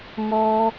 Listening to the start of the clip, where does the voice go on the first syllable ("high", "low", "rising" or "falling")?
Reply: low